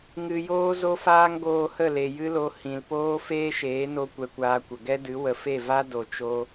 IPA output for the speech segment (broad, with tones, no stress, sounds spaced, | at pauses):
ŋ ɨ˧ j oː˦ z o˦ f aː˦ ŋ ɡ oː˧ h ə˦˨ l e˨ j ɨ˦ l o˧ h ĩ˨ l p oː˦ f eː˦ ʃ eː˨˦ n o˧ kʷ ɛ˧ kʷ aː˧ kʷ ə˨ ɡ ɛ˦ d ɨ˨˦ w ə˨ f e˦˨ v a˦ d o˨ t͡ʃ o˧